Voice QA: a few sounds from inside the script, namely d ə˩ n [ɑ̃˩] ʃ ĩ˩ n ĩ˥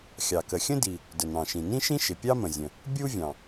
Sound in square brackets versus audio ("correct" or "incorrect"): correct